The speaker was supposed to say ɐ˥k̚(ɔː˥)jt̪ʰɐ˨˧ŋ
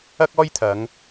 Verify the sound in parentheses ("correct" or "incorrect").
correct